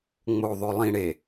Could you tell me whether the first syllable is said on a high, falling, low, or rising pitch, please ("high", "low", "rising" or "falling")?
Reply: low